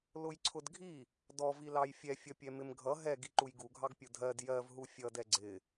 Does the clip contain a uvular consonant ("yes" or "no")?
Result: no